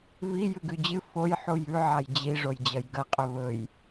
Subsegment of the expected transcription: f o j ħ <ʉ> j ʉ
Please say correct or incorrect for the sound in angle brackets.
incorrect